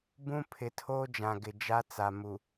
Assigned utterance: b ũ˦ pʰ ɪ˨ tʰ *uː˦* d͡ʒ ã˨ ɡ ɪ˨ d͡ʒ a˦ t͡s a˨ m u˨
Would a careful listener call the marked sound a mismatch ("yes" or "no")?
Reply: yes